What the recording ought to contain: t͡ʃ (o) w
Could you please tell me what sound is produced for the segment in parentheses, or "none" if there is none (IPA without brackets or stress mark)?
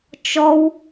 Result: ɔ